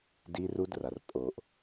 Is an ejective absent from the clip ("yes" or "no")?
no